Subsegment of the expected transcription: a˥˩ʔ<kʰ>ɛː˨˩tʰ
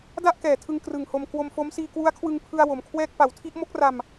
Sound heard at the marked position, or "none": k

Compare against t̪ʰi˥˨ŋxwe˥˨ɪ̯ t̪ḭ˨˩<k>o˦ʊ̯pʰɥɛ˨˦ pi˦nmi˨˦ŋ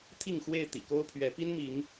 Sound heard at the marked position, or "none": k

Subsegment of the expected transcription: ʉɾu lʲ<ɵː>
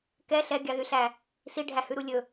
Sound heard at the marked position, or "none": ɵ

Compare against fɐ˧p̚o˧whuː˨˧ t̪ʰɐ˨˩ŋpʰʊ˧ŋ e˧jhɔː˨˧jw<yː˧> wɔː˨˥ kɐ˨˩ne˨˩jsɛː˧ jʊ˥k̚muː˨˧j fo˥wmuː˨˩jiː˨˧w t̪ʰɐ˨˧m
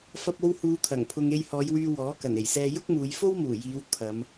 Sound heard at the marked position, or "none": yː˧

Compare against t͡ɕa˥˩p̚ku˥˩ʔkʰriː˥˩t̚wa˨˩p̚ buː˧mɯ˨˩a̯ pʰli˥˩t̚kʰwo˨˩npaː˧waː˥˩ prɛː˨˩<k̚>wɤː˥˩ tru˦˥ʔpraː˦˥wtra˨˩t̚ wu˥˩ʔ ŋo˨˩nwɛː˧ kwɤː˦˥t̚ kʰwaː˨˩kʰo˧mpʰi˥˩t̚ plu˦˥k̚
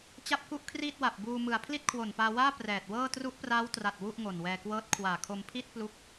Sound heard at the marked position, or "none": t̚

